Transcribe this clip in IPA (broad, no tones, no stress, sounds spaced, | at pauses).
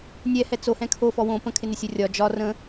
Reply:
nʲ ɛ h ɛ t͡s o h ɛ̃ kʰ o f ɔ w õ p ə̃ kʰ ɪ n ɪ sʲ o rʲ ɒ d͡ʒ ɒ r ə̃